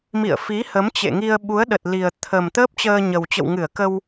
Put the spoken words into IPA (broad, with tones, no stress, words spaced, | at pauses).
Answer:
mḭ˧˨ə̯fi˨˦ hə˨˦mt͡ɕḛ˧˨ŋi˧ə̯ ɓu˨˦ə̯ɗə˨˩t̚li˨˩ə̯t̪ʰə˨˩m t̪əː˦˥p̚t͡ɕəː˧ɲə˨˩w t͡ɕə̰˧˨wŋɨ˧˩ə̯kə˧w